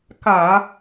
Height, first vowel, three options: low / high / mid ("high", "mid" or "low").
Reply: low